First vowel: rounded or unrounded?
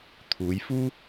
rounded